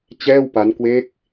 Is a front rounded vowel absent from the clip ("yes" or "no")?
yes